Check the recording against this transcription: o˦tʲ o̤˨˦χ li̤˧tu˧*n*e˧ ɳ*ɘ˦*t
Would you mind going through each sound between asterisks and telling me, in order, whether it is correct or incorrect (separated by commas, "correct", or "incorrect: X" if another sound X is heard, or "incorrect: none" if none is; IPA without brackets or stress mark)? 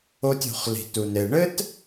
correct, correct